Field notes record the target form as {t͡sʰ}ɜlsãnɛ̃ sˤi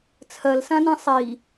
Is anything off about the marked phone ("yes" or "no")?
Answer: no